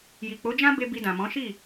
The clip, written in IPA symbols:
ji˨k͡po˨˦d͡ʒã˦ be˧ bi˧dã˨mɔ̃˨˦ ʃi˦˨

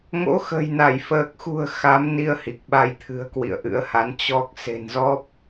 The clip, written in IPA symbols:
ŋo̰˧˥xə̤˨˩jna˧˩j fəː˨˩k̚xṳ˨˩ə̯ xa˨˦mni˧ə̯ hi˨˩k̚ɓa˧j t̪ʰɨ̤˨˩ə̯kwḭ˧˨ə̯ ʔɨ̰˧˥ə̯ha˨˦n t͡ɕɔ˦˥k̚ se̤˨˩nzɔ˦˥p̚

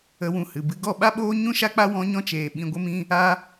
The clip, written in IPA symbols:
ə˧wũ˧hɨ˨bɨ˧ ɡɔ˦˨ɓa˦ɓoː˦ ɲũ˦ʃa˦k͡pa˦ wɔ̃˧ɲɔ̃˧t͡ʃeː˨ ɓĩ˧ɡʷə˦mĩ˦ | a˦

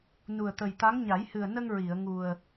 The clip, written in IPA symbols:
nu˨˩ə̯t̪ə˨˩jt̪a˧˥ŋ ɲa˨˩˦jhɨ˨˩ə̯nə˧ŋ ɹi˨˩˨ə̯ŋu˨˩ə̯

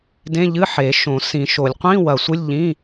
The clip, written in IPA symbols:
dẽ˧˥˧ʎɨ˧˥˧ ħe˨˩˦ʃõ˨˩˦sĩ˨˩˦ʃo˨˩˦lʲ qʷĩ˧˥˧ wɐ˨˩˦sʷɨ˧˥˧lʲ ʎĩ˧˥˧

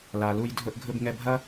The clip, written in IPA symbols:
la˩ lu˧j dʱɵ˧ʔɡʱɵ˧b ŋɛ˧bʱɐ˥

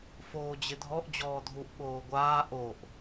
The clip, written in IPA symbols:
foːd͡ʑɪdʱɔʔ d͡ʑɔːdʱuʔ ɓoːɡʷaː ʔoʔ

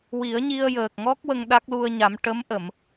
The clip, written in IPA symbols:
wi˨˩˦ə̯ɲi˧ə̯jəː˨˩k̚ŋɔ˦˥k̚ wə˧ŋ ɗa˦˥k̚lu˧ə̯ɲa˨˩˦m ʈə˧˥m ʔə˨˩˨m

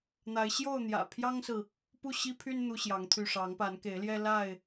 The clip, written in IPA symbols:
n̪a˨˦ɪ̯ ɕjo˥˨ʊ̯ n̪jä̰˨˩pʰjɑ˦ŋsɹ̩˨ | pu˥˨ɕi˦pʰy˦n n̪u˦ɕjɑ˨˦ŋt̪ʰy˥˨ ʂɑ˨˦ŋpa˨˦nke˨˦ɪ̯ljɛ˦ la˥˨ɪ̯

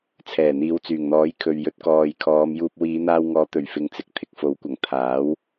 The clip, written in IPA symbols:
t͡sʰɛː˨˩n̪iː˨˧wt͡syː˨˩ŋn̪ɔː˨˥j kʰɵ˨ɥjɵ˨˥t̚kɔː˨j kʰɔː˨˧mjuː˧p̚ wiː˨˧n̪aː˧wŋɔː˨˥ t̪ɵ˨˩ɥfɪ˨ŋt͡sɪ˨k̚ t̪ʰɪ˨k̚fo˨˥wkʷɐ˨˩ŋ t̪ʰaː˨˥w

